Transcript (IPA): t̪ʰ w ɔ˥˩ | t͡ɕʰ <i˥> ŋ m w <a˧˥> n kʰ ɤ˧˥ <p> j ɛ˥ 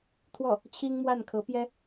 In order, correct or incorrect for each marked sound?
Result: correct, incorrect: a˥˩, correct

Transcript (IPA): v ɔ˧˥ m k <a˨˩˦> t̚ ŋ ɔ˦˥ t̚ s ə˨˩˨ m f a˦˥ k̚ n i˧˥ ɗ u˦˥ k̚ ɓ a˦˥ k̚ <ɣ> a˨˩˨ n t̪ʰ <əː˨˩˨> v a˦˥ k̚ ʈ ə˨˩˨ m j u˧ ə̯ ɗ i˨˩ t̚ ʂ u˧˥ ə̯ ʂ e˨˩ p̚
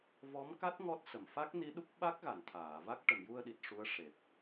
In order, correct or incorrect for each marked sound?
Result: incorrect: a˦˥, correct, incorrect: aː˨˩˨

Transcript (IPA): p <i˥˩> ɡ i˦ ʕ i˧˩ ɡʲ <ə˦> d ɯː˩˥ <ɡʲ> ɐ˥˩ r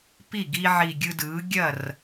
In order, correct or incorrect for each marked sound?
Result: correct, incorrect: ɯ˦, correct

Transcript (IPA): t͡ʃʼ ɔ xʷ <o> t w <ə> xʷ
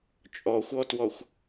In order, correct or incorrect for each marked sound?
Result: incorrect: ɔ, incorrect: ɔ

